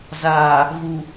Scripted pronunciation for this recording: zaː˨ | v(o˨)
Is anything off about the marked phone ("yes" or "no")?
yes